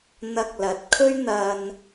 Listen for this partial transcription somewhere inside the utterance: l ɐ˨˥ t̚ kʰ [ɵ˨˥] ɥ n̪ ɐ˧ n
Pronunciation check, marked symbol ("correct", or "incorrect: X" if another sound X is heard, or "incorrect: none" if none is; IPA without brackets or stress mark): incorrect: ɵ˥